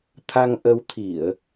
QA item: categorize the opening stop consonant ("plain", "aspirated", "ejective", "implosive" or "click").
aspirated